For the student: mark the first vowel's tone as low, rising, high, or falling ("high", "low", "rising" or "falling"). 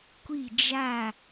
falling